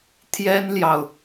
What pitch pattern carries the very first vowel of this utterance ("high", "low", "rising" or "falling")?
high